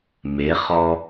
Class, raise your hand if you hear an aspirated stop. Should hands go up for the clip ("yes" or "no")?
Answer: no